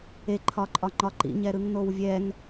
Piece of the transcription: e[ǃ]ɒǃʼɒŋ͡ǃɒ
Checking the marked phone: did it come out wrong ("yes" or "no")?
yes